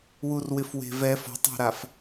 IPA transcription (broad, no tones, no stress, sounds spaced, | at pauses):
w u r w ɪ f w e̤ v ɛ f ɔ̤ tˤ e̤ ɾ a f